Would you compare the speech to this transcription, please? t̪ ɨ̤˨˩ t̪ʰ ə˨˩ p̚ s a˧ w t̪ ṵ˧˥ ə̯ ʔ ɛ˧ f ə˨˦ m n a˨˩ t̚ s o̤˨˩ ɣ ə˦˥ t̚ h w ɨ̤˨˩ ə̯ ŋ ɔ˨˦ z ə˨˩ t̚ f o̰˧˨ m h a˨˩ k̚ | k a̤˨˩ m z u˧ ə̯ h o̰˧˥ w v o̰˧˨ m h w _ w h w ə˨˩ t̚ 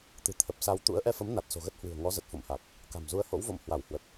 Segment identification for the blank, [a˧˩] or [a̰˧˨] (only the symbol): a˧˩